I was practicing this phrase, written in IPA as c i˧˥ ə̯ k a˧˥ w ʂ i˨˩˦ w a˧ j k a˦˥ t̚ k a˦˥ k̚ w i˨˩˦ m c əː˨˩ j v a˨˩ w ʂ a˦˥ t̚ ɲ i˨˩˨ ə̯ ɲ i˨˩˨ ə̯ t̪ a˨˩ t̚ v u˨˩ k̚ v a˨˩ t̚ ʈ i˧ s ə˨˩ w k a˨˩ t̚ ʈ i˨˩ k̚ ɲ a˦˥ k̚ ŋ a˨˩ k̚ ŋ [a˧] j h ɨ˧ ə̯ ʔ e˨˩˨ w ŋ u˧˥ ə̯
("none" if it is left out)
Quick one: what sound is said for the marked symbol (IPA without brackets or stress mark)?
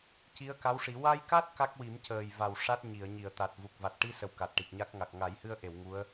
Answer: a˨˩˦